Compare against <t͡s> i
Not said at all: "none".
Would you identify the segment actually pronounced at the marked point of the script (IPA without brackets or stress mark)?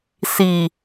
s